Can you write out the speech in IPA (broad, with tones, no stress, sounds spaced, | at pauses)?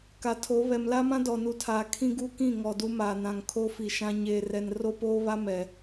k a˨ tʰ o˨˦ β ɛ˨ m l a˦ m ã˦ d ɔ˨ n u˨ tʰ aː˨ kʰ ĩ˦ ɡ u˦ k ĩ˦˨ ŋ ɔ˨ d u˦ m aː˨ n ã˨ ŋ kʰ o˦ f i˨ ʃ ã˦ ɲ eː˨ r ɛ˨ n r o˦ p oː˦ β a˦ m ɛ˨